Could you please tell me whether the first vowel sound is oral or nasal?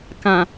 nasal